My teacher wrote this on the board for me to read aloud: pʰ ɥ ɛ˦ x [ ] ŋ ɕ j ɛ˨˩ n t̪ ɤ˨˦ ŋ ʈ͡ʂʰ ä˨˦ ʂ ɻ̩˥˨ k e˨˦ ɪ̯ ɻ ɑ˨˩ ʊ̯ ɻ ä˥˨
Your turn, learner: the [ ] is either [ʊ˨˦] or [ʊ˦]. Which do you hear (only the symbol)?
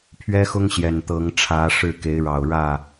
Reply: ʊ˦